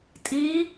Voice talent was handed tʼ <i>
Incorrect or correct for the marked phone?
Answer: correct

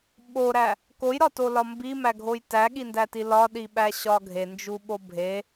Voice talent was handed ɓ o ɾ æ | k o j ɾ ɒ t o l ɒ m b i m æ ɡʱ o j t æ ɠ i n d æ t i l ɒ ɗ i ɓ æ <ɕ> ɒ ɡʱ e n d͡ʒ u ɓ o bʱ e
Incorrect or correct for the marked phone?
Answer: correct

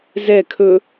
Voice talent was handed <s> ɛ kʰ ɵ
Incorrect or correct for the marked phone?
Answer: incorrect: z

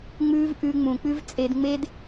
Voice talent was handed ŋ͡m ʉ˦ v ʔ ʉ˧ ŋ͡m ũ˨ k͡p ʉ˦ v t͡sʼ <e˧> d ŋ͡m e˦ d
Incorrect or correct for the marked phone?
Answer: correct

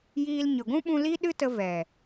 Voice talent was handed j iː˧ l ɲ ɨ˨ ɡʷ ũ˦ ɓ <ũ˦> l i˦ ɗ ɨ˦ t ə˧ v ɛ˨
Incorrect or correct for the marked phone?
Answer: incorrect: ũ˧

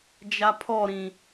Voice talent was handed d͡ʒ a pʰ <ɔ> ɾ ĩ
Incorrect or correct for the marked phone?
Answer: correct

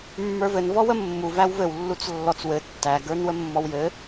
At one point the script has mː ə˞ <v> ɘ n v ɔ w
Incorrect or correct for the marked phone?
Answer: correct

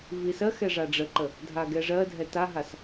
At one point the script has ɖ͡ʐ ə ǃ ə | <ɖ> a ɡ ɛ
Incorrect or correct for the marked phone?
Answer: incorrect: dʱ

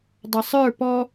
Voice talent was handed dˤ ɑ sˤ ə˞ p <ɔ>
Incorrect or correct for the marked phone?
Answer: correct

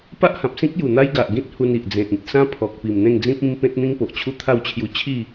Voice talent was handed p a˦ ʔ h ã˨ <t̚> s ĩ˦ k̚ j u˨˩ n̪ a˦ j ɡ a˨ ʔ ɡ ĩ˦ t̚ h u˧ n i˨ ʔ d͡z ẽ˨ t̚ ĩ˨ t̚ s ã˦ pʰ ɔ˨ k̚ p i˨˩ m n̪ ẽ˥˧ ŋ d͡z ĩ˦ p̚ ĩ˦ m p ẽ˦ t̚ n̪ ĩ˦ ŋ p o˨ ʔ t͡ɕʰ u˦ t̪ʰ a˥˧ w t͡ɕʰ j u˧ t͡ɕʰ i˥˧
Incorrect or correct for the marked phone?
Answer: incorrect: p̚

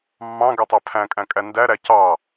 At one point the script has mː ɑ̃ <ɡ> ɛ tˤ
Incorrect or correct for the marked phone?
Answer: correct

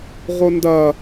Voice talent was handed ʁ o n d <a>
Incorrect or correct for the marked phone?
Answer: incorrect: ɐ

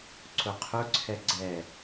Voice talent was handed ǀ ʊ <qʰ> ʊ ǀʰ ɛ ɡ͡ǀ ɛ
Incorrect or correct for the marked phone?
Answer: correct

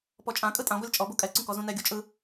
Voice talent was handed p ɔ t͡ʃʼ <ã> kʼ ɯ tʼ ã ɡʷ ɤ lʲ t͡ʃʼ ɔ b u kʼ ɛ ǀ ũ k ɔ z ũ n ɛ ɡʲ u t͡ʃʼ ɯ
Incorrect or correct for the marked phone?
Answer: correct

